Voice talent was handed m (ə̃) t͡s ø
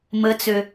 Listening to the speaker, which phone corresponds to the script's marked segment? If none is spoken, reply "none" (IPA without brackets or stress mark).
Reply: ə